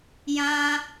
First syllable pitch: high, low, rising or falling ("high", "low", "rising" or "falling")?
high